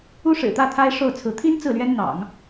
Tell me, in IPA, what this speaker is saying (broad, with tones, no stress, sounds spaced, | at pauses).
u˥ ʂ ɻ̩˨˩ t̪ ä˥˩ t̪ʰ a˥ ɪ̯ ʂ o˥˩ ʊ̯ t͡sʰ ɹ̩˧˥ t̪ʰ i˥ n t͡s ɹ̩˥˩ l ɥ ɛ˥ n n̪ ɑ̰˨˩˦ ŋ